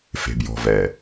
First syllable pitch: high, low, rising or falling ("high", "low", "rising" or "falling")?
low